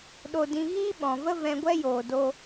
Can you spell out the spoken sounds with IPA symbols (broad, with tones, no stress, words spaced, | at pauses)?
ɗo˧dĩ˧ ɣiː˦ɓɔ̃˨və˦ vɛ̃˧ɡʷɛ˦joː˨ do˦